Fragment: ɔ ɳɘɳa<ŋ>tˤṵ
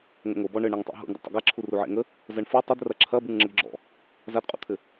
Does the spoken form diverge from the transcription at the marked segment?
no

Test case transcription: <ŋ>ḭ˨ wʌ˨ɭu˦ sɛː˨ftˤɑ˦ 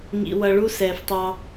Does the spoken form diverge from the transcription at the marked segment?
no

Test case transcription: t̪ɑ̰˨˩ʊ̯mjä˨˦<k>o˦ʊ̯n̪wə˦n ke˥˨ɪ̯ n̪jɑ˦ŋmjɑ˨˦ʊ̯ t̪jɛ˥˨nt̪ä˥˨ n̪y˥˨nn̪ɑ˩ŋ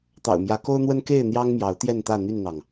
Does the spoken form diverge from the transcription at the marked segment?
no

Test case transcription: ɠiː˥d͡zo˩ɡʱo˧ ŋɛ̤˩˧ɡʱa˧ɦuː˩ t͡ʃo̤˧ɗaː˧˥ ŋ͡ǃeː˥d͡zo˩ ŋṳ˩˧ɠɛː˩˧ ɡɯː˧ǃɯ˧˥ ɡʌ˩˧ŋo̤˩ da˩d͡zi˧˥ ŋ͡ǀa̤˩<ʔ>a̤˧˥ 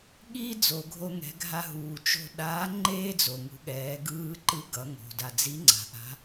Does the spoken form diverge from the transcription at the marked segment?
no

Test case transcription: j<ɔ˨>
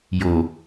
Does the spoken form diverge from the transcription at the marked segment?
yes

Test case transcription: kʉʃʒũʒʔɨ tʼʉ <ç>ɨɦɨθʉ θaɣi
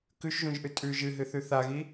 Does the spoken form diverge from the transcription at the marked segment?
yes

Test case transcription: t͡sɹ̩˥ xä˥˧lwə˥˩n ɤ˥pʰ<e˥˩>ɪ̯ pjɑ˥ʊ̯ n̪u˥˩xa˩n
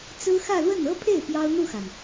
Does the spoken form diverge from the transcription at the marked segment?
no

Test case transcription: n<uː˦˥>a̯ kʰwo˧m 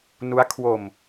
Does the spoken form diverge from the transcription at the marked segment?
yes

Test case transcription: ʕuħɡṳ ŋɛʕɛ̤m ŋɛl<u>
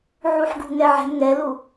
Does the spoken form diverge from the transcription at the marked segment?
no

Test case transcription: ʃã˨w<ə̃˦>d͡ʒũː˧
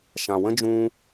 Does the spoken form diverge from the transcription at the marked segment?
no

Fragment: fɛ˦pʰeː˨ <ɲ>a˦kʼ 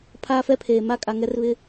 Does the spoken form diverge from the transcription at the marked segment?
yes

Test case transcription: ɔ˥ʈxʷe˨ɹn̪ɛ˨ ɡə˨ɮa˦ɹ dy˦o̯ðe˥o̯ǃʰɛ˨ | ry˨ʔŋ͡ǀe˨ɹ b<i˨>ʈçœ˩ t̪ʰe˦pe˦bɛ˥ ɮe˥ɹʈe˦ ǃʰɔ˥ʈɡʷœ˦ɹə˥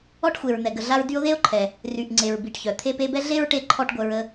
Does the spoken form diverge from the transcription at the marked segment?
no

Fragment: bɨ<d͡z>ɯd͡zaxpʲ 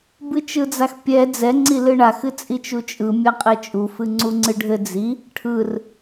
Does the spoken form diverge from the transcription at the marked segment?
yes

